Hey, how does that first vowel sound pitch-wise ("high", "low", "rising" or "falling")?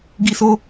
high